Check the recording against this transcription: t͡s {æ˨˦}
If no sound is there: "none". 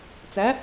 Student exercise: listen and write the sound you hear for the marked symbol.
æ˨˦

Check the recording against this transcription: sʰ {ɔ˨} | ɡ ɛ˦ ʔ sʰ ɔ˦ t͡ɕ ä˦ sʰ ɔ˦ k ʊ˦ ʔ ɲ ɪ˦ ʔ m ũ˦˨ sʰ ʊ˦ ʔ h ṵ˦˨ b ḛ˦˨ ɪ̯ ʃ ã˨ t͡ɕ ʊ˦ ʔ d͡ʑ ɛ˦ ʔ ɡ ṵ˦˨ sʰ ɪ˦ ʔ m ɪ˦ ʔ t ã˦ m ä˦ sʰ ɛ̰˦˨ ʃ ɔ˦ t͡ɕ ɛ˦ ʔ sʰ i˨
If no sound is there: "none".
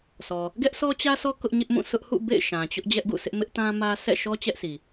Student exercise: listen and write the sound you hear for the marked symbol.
ɔ˨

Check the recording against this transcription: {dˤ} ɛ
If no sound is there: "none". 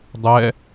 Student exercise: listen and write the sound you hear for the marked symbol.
dˤ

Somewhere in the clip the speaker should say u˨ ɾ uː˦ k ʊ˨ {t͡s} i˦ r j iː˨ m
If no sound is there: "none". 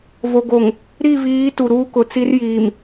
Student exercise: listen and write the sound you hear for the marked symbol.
t͡s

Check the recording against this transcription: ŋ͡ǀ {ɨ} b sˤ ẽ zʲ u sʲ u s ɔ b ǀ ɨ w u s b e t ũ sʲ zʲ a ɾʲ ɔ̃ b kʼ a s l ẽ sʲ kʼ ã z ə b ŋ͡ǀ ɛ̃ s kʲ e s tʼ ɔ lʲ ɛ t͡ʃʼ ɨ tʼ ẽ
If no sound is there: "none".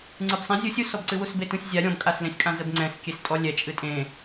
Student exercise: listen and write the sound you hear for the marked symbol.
ɨ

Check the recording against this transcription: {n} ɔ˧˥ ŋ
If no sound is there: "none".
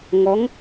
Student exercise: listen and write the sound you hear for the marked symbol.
ŋ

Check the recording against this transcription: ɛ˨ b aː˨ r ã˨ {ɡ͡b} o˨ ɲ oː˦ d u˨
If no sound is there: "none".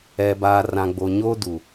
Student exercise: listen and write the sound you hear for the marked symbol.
ɡ͡b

